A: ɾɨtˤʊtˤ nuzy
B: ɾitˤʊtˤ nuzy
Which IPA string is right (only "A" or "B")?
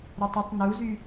B